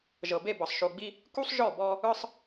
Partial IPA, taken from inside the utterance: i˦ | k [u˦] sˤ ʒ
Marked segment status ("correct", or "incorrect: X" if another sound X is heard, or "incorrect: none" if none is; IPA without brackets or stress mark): correct